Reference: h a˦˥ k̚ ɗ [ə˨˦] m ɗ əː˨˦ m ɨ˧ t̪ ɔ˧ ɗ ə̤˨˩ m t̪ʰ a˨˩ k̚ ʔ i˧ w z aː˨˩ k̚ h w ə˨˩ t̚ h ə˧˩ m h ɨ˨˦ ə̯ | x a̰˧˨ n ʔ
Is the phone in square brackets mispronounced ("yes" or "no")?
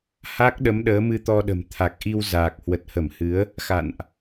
no